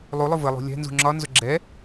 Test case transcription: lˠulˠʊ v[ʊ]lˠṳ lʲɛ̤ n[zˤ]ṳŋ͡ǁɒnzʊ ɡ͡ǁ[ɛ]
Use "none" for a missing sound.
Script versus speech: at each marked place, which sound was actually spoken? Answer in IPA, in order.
ə, z, ɛ

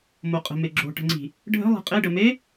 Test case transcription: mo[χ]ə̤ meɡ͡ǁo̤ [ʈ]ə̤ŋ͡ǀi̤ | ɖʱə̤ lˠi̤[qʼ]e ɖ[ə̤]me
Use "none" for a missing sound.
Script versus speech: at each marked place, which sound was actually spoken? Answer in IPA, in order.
qʼ, ʈ, qʼ, ə

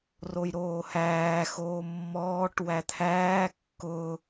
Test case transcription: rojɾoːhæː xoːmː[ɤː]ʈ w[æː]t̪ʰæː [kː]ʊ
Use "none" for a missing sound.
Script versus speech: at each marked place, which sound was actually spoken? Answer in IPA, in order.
ɔː, æ, kː

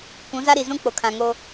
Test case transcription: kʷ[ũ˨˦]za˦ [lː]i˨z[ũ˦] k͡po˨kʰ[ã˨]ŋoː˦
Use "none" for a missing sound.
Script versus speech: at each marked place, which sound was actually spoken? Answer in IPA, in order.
ũ˨˦, ɾ, ũ˦, ã˨

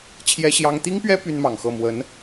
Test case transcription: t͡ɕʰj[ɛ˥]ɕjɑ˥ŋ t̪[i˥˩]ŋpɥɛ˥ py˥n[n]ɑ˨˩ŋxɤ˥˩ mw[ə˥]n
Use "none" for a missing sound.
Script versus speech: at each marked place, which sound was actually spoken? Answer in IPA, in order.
ɛ˥, i˥, m, ə˧˥

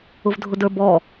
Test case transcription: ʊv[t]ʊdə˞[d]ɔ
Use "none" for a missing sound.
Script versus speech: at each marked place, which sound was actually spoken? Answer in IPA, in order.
dʱ, b

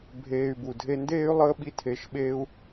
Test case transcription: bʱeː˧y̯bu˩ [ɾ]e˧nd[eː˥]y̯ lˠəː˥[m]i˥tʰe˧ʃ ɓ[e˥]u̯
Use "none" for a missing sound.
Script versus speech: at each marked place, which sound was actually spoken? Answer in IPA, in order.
dʱ, eː˥, ɓ, eː˥

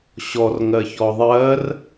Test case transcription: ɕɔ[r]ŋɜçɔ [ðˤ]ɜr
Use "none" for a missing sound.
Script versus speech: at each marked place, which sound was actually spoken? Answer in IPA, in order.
r, ðˤ

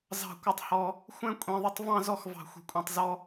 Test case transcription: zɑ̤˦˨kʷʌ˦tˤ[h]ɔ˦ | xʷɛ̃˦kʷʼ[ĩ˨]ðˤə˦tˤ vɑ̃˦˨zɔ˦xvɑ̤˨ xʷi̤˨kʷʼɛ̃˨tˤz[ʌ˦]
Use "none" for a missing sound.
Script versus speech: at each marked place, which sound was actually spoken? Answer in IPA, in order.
h, ĩ˨, ɔ˦

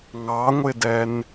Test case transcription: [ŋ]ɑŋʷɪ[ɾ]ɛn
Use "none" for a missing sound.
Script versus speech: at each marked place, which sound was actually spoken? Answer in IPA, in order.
ŋ, d

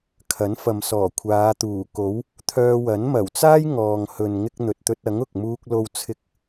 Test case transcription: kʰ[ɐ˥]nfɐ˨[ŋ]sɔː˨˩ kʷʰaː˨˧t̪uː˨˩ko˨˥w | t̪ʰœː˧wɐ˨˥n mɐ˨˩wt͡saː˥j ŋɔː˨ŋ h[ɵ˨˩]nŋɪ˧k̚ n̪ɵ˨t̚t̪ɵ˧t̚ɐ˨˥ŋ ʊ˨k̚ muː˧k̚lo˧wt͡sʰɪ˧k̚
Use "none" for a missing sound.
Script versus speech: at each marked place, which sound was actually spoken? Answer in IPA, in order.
ɐ˨˥, m, ɵ˨

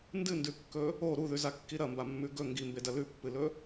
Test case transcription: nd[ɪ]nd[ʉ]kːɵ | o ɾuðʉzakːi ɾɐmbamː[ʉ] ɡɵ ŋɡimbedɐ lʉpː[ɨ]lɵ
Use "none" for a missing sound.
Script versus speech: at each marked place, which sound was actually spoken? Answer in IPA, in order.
ɨ, ʉ, ʉ, ɨ

